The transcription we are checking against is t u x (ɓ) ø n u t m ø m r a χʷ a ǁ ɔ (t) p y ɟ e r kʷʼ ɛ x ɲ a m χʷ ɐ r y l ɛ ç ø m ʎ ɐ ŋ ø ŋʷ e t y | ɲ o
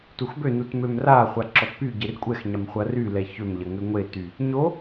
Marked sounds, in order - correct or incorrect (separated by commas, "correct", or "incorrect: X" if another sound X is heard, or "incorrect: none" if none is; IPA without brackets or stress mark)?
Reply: incorrect: b, correct